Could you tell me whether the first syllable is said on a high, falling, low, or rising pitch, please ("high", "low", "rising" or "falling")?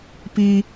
high